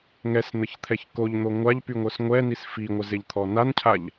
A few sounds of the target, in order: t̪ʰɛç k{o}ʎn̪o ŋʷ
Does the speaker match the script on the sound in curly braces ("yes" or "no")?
yes